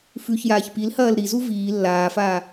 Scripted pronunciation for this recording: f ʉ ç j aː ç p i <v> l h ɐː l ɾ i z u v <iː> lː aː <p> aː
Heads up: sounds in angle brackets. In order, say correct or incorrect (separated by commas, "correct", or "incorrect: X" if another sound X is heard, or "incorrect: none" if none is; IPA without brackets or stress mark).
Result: incorrect: none, correct, incorrect: f